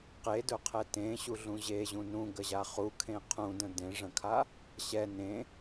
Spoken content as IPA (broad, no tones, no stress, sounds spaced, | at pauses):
q e d ɵ qʰ ɛ t ẽ ɕ u ɮ ũ ʑ e ʑ ũ n ũ ɡ ə ʑ a χ u kʰ ẽ qʰ ũ d ə̃ d ẽ ʐ ə̃ kʰ a | ɕ ɛ n ẽ